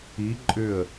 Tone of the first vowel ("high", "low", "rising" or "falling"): rising